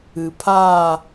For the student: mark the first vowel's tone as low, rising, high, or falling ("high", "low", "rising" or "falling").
low